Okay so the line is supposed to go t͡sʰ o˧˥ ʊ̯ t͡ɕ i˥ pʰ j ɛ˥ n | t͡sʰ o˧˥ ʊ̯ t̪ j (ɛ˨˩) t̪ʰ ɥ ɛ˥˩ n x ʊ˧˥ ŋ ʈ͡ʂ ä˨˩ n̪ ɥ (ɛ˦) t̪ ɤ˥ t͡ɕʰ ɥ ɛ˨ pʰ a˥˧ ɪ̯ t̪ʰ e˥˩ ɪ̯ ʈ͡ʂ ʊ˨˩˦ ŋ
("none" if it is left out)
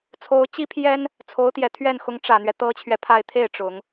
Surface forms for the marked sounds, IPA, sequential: ɛ˨˩, ɛ˦

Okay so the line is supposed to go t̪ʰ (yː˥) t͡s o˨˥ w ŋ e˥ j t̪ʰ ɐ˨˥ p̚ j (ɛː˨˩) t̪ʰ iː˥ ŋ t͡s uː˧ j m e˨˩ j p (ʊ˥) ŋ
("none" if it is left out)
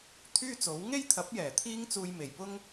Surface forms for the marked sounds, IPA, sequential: yː˥, ɛː˨˩, ʊ˥

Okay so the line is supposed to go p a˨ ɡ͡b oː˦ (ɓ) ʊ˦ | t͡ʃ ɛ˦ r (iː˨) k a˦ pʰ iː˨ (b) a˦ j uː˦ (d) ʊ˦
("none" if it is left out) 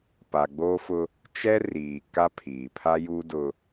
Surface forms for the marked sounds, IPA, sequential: f, iː˨, pʰ, d

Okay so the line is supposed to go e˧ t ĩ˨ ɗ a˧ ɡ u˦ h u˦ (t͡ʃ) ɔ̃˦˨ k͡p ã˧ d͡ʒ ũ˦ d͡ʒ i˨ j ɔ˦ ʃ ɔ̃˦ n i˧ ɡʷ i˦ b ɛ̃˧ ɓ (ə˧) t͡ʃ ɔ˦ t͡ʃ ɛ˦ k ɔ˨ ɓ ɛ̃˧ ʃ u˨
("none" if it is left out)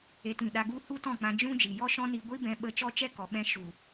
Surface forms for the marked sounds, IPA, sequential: t, ə˧

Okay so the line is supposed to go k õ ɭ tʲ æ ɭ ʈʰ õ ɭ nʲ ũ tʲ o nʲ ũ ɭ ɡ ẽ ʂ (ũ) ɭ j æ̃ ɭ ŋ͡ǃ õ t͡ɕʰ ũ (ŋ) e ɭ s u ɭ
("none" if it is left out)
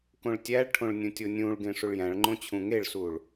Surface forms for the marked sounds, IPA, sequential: u, ŋ

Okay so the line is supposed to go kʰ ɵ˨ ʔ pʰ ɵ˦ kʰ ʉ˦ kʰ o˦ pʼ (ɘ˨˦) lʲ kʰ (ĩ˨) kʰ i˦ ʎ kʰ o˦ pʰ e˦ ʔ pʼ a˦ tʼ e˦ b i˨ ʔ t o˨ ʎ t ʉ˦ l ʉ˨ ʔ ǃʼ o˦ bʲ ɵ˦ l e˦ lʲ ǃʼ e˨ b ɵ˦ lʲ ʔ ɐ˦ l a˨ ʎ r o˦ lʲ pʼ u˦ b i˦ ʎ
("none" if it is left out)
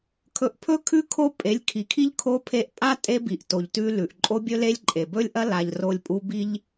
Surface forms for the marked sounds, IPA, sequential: e˨˦, i˨

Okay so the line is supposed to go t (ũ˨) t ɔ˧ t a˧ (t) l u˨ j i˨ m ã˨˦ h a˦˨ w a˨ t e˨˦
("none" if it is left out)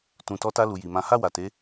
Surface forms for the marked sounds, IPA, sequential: ũ˨, none

